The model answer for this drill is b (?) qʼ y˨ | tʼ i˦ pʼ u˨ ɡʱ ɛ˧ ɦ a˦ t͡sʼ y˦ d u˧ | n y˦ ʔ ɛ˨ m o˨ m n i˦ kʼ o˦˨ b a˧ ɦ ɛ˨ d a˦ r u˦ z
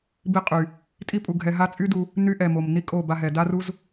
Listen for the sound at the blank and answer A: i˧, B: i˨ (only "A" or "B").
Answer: A